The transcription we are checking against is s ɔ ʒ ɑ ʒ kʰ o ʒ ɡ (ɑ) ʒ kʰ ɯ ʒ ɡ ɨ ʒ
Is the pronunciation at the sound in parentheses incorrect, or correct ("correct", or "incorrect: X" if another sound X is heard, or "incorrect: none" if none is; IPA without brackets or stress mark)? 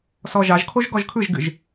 incorrect: ɔ